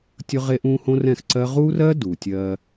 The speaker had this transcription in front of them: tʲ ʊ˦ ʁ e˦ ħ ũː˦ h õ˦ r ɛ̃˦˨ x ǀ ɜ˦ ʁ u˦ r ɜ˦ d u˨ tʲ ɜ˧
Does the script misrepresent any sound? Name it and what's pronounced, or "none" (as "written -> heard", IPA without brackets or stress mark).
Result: ħ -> ʔ